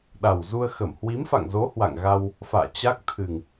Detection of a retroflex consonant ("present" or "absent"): absent